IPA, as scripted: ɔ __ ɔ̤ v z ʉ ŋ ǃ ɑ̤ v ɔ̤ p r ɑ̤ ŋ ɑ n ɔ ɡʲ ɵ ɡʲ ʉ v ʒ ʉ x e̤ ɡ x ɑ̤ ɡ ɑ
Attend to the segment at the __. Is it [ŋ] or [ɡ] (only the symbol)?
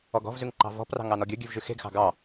ɡ